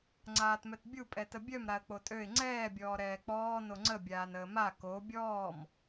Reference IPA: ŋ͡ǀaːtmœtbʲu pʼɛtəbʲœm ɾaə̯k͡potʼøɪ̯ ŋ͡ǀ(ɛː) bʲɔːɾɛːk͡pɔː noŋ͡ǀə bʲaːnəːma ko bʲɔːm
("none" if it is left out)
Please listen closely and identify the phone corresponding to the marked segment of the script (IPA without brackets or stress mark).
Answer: ɛː